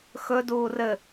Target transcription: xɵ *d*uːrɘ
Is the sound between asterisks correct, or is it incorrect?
correct